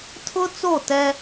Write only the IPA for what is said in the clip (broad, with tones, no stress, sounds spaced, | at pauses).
tʰ ʊ˦ t͡s o˦˨ t ɛ˦